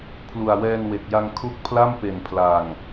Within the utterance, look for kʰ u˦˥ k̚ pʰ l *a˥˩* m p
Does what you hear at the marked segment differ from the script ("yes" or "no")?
no